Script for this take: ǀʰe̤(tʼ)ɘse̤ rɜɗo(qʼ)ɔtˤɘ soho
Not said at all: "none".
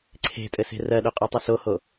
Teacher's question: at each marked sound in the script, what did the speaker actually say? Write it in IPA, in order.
tʼ, qʼ

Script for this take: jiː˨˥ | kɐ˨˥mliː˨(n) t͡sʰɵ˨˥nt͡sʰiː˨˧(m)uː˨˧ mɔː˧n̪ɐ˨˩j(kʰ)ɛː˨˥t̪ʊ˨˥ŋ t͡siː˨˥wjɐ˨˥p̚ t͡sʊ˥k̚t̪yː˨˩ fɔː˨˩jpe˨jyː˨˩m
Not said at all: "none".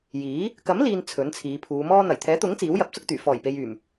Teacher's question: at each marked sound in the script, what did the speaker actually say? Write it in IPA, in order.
n, pʰ, t̪ʰ

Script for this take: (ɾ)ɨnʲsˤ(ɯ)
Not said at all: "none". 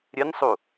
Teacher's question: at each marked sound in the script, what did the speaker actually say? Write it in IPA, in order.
ɾʲ, u

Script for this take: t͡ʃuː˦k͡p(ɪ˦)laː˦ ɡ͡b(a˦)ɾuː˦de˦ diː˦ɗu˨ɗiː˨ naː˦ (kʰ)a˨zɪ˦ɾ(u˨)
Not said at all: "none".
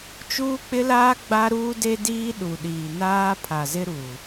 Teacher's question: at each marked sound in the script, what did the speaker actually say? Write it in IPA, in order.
ɪ˦, a˦, pʰ, u˨

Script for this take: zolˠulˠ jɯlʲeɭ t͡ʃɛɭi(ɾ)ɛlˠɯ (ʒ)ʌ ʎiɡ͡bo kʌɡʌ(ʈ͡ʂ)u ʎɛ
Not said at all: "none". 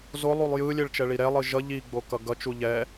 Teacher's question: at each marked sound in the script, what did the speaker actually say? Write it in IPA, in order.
ɾ, ʒ, t͡ʃ

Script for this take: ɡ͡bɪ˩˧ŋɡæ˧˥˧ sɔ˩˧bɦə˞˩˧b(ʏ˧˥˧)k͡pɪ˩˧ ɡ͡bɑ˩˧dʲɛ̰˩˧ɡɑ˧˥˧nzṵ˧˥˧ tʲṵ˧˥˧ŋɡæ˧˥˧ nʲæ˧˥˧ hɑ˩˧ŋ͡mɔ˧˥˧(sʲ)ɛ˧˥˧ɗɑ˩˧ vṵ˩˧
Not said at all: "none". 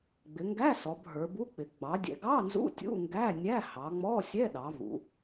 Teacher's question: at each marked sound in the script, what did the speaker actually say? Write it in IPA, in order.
u˧˥˧, sʲ

